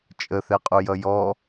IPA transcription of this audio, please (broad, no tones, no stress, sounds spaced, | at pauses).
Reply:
t͡ʃʼ ə θ ɛ qʼ u j ʌ j ɔ